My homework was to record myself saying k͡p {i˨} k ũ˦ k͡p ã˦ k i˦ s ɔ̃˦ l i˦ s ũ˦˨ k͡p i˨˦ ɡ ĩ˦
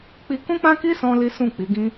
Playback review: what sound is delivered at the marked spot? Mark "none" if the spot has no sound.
i˧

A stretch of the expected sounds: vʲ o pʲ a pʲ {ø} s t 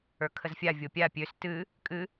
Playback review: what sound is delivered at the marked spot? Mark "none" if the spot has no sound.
ø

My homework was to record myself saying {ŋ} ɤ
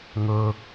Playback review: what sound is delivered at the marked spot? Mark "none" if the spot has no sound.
ŋ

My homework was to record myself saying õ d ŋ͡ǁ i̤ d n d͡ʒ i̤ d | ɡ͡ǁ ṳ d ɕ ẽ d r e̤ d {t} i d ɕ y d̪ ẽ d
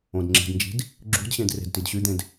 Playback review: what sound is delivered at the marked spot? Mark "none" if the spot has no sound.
t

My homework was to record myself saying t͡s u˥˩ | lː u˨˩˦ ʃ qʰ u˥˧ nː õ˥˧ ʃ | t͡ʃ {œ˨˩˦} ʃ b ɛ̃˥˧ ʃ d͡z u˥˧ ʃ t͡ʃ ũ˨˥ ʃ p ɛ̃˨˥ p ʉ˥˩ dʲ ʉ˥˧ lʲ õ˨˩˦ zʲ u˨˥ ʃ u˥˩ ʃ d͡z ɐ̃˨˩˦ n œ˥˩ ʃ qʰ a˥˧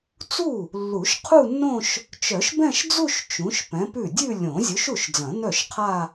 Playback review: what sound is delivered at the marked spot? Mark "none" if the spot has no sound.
œ˨˩˦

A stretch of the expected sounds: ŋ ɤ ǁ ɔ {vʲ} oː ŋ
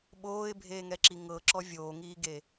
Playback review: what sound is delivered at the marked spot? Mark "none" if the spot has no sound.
vʲ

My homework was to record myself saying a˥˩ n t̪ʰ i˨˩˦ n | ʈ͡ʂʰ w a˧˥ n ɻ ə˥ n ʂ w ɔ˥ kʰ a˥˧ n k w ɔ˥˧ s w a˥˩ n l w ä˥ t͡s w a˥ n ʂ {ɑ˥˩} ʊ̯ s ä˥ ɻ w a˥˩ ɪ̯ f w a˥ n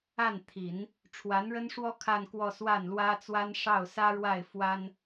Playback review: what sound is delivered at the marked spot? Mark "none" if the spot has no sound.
ɑ˥˩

